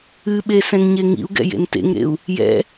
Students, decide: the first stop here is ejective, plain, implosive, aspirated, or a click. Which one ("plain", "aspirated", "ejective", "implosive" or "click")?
implosive